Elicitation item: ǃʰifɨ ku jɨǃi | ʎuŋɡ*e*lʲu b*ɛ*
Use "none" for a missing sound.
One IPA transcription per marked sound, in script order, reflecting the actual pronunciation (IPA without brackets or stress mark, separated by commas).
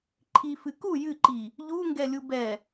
ɛ, ɛ